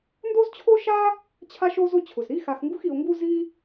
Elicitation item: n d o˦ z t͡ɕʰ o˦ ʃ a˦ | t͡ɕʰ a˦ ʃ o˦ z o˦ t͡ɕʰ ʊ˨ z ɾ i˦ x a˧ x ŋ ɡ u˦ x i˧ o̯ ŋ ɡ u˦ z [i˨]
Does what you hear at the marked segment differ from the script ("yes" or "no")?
yes